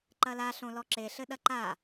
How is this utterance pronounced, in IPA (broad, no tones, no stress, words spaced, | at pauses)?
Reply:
ǃɐla ɬõlɔǁe ɬɘɗɐǃa